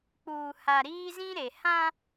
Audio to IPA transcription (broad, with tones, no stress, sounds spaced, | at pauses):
k͡p uː˨ h a˨ ɾ iː˦ z ĩ˦ ɾ e˨ h ã˦